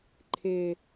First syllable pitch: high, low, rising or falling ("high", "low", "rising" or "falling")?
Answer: low